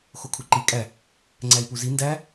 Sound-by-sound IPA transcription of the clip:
xokʰuǃi kʼæ | ŋ͡ǀæi̯puzi ndæ

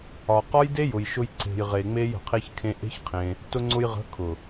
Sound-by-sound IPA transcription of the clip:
ɒ˨ qɒ˦jde˦jʊ˨jʃʊ˧j ǀe̤˨jʁe˨ŋ͡me˧j ə̤˨qʰe˦çkʰẽ˦ ʔe̤˦çqʰẽ˧ | tʊ˧ŋ͡ǀʊ˧j ʁə̤˨˦ kʰʊ˨

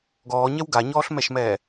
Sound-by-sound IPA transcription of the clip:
ɡɔːɲɛw ɡaɲɔːɬmɛʃmɛː

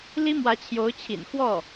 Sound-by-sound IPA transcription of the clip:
li˥mwä˧˥t͡ɕʰjo˧˥ʊ̯t͡ɕʰḭ˨˩n xwɔ˥˩

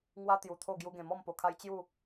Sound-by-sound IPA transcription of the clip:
ŋwa˧ t̪ju˨˩t̪ʰo˥˧ ɡju˧ɡẽ˨˩mɔ˥˧m po˧kʰa˦j t͡ɕju˥˧

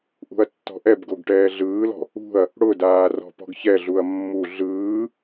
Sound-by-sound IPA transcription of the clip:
ʔṳɐ̯tːɔ̤ʔɛbɡoɡ ʈɛːɮɯːlɔ̤ | ṳɐ̯ | ɽʊdaː rɔ̤pɔ̤ɡçɛɮuɐ̯ mːu ɮɯː

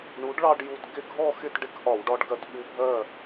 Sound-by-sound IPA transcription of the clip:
ɳu˩˥ɖɭɑ˧ɖ ju˧˩t ɡɪ˥˨ɡʱɔ˥˨ xɪ˥˨tɖɪ˧˥kʔɒ˧˩˧wɖɒ˧ɖ ɡɜ˧tɓu˧˥bʱɜ˥˨

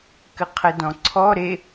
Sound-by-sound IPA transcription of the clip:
kɘqʰɘdɔ̃ǀʰɔ ɾe

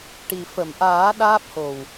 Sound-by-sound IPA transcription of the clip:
ʈi˨˩ fə˨˩˨mʔaː˨˩˦ ɗaː˦˥p̚ho˨˩w

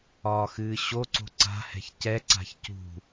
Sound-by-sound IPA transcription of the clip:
ɒːxɨːɕoǀo̤ ǀa̤hɛ̤ç cɛǀa̤ç cṳ

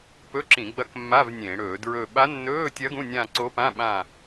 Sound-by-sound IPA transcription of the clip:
pɵ˧˥˧ǁĩ˧˩˧ɡ͡bɐ˧˥k mːa˧˥˧v nʲẽ˧˩˧ ɽɵː˧˩˧dɹɵː˦˨ ɓa˧˥nːɵː˧˥˧tʲɐ˧˥ ɡũ˧˥˧nʲã˦˨ǀo˧˥pã˧˥˧ ɓã˦˨

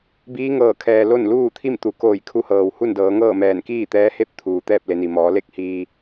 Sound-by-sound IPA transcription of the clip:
biː˧˥ŋɤː˧˩kʰɛː˩ lo˥˨n luː˥˨t̪ʰi˥˨mt̪u˩koː˧˩j kʰu˧˥hɤː˩w hu˥˨ndɤː˩˧ŋɤː˥˨mɛː˧˩n kiː˥˨t̪ɛː˧˥he˥˨p̚t̪ʰuː˩ t̪ɛː˥˨p̚le˩˧ni˩ mɔː˩˧le˥˨k̚hiː˧

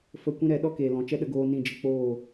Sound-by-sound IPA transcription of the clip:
fə˧ kʷĩ˦ɾɛ˨˦ɗɔ˦ keː˨lɔ̃˨t͡ʃɛ˦ɗə˧ ɡoː˧nĩ˦˨ d͡ʒə˧k͡poː˦˨

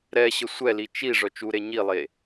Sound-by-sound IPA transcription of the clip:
ɾɛ ɕəsʷɛli t͡ʃi ʐœt͡ʃuɾe ɲilˠe

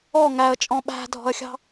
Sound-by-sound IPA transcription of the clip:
ɔ ŋæə̯t͡ʃʼɔ̃ ɓæ̤dʱɔ̤ə̯xʲɑ̤

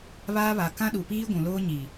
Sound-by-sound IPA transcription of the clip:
βaː˦βa˨ kã˦ɗu˨piː˦ ɡʷũ˨loː˦ɲi˨

